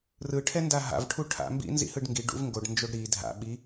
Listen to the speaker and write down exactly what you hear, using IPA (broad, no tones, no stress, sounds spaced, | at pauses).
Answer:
r ɯ ʈʰ ɛ n d a ɦ a̰ v ʈʰ u ʈʰ a̰ m b ḭ n z ḭ h ɯ ɖ ŋ ɡ i ɖ ṵ v ŋ ɡ o ɖ n d͡ʒ o ɖ ɾ i dʱ a̰ ɓ i